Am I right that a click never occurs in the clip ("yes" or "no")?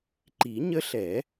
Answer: no